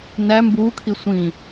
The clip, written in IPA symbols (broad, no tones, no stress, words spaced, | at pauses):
næ mbuːkʰi sʷĩ